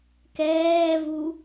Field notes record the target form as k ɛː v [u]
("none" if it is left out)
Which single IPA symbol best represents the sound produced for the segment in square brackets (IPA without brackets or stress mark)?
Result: u